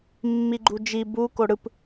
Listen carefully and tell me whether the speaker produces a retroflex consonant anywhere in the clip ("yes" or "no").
yes